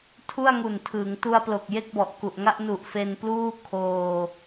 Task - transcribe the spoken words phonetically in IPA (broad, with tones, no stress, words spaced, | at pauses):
tʰu˥˩a̯ŋu˨˩ntʰɯː˩˦ŋ tu˧a̯plo˨˩k̚ je˥˩k̚bɔ˨˩ʔku˨˩ʔŋa˥˩ʔ nu˨˩ʔ fe˧npluː˥˩ kʰoː˧